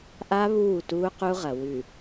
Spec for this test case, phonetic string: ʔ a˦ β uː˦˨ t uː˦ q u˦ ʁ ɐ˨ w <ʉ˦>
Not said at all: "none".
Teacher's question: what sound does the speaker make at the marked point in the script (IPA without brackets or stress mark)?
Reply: ʉ˨